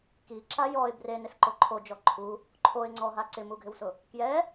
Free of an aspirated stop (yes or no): no